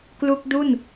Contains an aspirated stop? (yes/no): no